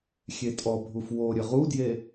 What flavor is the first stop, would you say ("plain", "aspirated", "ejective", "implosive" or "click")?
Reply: ejective